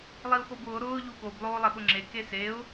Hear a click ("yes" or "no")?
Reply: yes